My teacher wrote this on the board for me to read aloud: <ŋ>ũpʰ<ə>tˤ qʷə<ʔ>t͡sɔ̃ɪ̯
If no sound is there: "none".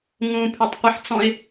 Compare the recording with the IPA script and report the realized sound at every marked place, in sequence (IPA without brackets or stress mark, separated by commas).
ŋ, ʉ, ħ